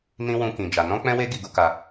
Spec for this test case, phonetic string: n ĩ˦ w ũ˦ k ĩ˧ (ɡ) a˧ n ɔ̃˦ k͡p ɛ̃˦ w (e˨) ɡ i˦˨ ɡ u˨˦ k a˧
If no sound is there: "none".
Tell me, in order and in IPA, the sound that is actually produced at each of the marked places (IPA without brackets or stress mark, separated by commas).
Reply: d͡ʒ, e˦